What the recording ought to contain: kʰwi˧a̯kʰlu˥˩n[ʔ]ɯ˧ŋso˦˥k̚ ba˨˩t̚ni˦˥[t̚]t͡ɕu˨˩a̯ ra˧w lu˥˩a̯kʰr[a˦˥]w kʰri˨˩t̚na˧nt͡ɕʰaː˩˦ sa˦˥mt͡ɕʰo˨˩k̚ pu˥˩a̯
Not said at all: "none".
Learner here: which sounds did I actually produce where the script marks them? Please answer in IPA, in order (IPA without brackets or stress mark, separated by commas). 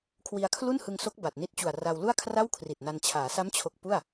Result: h, t̚, a˥˩